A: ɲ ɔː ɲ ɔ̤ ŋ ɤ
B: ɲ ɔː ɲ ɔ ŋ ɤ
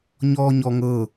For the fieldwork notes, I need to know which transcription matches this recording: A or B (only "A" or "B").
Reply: B